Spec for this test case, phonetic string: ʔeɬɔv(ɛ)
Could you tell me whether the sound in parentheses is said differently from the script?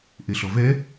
no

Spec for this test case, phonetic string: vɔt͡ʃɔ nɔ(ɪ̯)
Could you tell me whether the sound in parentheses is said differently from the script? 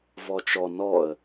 yes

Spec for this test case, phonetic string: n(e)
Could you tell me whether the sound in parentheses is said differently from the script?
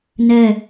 yes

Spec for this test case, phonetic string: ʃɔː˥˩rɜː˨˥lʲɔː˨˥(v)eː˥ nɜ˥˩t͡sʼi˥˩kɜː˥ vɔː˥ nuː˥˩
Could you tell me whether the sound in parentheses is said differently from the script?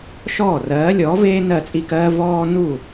no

